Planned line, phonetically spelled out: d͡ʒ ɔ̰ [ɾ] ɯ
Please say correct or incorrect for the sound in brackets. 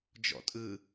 incorrect